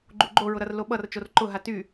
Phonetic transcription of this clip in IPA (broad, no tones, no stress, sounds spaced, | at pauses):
ɡ͡ǃ u ɡ͡ǃ o ɹ ʊ ɾ ʌ r l o ɓ ʌ r t͡ʃ o r ǃ ʊ ɦ a t y